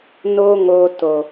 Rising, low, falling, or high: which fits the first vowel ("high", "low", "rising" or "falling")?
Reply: high